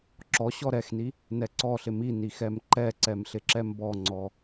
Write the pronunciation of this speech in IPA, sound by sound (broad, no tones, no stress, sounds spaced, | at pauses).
ǁ ɔ ɕ ɔ ɾ ɛ x n i | n ɛ ǀ ɔ ɬ ɪ m i n i x ɛ m ǃ ɛ ǀ ɛ m ɬ ɪ ǁ ɛ m b ɔ ŋ͡ǀ ɔ